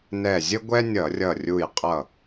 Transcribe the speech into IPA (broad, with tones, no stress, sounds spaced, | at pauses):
n ɛ˧˩ zʲ ə˥ ɡʷ ɛ˥ nʲ ʌ˧˩˧ rʲ ʌ˧˩ rʲ u˧˩ j qʼ ʌ˧˩